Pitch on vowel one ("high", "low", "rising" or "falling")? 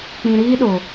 low